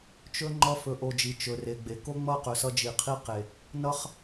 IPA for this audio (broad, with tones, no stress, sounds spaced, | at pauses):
t͡ʃ ɵ˦ ŋ͡ǃ ʌ˦ f ɵ˧ ʔ o˧ d͡ʒ i˨ t͡ʃ ɵ˨ r e˨ ɡ͡b e˨ k o˦ ŋ͡m ʌ˦˨ q ɵ˨ s ʌ˧ d͡ʒ i˨ qʰ i˦ q e˨ | n ʌ˦ χ